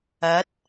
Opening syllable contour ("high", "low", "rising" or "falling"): rising